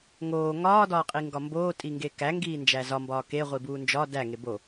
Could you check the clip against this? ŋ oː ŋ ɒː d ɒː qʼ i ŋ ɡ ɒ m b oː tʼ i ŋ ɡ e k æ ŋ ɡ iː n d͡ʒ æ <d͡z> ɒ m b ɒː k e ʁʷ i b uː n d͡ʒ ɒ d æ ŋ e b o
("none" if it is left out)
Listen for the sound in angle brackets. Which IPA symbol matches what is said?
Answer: z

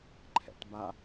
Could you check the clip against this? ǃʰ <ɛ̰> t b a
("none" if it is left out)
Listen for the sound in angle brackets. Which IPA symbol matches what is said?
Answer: ɛ̰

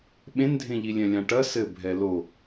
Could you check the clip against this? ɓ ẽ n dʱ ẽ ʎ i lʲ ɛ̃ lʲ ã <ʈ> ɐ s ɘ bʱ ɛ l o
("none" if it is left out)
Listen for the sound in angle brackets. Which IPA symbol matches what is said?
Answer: ʈ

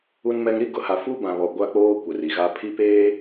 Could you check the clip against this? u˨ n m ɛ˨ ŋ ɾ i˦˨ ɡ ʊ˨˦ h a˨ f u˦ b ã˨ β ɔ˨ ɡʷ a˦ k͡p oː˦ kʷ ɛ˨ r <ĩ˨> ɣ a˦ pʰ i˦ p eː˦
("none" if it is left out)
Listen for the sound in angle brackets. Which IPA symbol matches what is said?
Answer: i˨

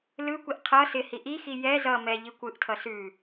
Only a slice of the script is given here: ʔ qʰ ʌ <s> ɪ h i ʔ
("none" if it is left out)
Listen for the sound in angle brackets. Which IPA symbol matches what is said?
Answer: s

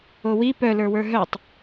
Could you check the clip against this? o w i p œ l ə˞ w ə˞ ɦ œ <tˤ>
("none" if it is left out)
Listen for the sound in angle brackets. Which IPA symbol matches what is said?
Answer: tˤ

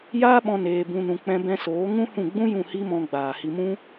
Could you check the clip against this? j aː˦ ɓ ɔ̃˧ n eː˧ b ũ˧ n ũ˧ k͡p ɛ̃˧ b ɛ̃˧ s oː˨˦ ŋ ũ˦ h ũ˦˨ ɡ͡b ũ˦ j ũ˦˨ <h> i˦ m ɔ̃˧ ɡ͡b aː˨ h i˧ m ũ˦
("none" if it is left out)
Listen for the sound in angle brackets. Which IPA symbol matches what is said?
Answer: h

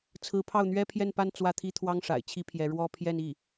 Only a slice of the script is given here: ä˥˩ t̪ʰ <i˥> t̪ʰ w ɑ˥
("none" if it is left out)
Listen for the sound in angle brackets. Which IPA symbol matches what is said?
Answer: i˥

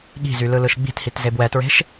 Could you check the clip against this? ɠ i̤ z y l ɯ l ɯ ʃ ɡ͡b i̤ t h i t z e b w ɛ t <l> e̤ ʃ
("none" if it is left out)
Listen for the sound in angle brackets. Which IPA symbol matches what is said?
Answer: ɹ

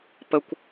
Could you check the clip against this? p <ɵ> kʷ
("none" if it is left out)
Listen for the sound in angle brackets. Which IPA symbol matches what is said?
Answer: ə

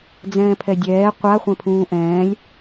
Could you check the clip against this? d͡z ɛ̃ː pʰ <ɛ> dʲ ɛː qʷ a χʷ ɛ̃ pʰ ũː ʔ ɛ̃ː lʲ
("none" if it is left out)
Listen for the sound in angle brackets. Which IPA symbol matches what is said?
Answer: ɛ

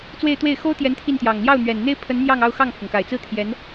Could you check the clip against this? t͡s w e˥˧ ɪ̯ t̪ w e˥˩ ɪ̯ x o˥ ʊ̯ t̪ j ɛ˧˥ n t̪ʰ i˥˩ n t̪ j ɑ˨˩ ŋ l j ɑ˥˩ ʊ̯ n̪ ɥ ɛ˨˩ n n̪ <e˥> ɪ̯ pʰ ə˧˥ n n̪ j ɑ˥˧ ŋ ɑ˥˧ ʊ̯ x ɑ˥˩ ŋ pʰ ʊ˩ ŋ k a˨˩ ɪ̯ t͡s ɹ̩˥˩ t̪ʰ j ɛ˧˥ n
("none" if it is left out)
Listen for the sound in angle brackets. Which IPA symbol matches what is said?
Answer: e˥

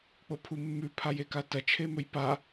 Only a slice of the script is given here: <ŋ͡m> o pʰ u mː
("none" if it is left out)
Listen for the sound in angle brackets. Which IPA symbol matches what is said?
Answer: k͡p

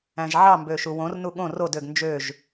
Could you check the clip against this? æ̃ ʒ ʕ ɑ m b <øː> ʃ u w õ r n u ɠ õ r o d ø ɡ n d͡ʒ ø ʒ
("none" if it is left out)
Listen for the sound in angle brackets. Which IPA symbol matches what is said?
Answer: øː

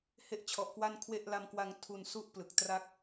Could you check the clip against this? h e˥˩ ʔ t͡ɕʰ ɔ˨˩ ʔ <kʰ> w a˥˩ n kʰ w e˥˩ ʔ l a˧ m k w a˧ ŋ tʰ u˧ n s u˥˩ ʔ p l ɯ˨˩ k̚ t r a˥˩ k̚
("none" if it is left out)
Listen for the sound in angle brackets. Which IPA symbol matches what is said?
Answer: k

